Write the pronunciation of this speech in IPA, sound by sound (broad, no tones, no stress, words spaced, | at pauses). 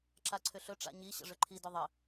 ǁaǀʰʏɬɵ ʈ͡ʂa̰ɲi ɕə̰ʐʏǃʰi dʏðˤə